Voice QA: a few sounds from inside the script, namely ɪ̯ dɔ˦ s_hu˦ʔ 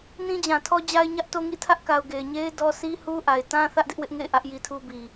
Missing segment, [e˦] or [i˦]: i˦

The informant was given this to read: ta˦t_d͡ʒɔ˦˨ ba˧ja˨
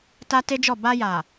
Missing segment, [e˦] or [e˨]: e˦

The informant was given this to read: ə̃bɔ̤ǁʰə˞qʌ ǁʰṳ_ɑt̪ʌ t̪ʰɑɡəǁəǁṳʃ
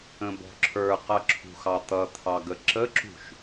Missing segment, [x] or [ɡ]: x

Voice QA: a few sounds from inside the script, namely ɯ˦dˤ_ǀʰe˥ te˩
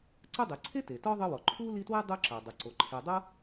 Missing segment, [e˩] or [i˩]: i˩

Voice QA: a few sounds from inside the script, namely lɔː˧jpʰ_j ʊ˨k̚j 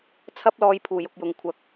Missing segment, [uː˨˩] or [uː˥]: uː˨˩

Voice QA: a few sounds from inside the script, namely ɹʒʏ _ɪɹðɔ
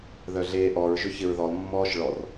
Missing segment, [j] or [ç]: ç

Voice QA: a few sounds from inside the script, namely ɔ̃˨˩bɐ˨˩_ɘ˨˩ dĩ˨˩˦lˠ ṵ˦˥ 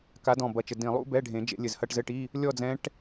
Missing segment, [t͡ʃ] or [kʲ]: t͡ʃ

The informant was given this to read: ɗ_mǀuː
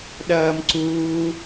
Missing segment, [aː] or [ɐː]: ɐː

